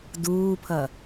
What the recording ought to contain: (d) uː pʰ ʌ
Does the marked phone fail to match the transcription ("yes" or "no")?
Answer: no